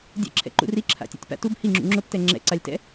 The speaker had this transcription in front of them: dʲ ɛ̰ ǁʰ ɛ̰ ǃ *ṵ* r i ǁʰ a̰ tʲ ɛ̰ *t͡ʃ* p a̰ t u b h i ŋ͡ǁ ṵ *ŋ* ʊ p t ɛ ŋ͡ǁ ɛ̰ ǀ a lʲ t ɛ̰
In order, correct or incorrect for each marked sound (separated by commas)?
correct, incorrect, incorrect